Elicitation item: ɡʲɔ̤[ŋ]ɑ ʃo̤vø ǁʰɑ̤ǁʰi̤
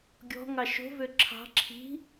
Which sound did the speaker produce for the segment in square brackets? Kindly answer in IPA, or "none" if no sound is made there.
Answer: ŋ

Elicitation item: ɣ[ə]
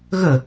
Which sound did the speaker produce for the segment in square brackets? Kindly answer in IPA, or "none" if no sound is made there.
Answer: ə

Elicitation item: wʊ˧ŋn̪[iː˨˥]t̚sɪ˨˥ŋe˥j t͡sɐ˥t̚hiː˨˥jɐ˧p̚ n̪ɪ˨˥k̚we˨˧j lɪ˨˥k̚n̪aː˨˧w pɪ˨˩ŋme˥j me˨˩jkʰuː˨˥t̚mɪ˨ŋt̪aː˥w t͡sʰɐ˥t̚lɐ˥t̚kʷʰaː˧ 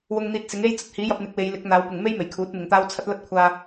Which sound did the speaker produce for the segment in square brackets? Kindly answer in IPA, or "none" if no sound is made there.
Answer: iː˧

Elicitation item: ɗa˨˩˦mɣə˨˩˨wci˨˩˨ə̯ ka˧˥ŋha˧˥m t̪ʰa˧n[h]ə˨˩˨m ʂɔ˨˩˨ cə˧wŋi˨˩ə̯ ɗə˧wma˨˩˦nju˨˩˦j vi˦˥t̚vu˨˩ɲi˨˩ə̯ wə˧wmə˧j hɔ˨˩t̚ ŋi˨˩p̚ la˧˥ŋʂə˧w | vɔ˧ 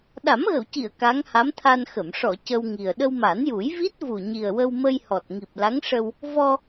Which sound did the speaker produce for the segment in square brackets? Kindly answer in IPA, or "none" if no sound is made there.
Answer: x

